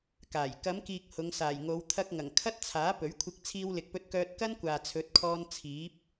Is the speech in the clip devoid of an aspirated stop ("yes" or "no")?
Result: no